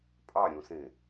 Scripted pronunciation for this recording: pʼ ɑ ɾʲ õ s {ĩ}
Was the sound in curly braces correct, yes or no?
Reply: no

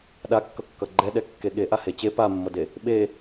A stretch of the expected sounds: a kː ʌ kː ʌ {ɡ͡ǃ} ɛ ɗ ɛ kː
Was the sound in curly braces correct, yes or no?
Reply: yes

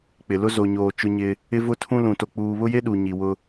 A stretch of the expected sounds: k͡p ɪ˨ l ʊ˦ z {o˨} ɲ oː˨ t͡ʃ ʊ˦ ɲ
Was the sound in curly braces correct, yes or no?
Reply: yes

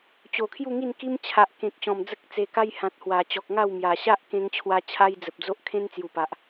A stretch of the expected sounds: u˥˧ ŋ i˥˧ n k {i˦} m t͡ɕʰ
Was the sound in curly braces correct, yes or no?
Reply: yes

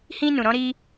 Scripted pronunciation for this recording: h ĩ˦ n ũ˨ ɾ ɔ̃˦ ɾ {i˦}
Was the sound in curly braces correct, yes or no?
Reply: yes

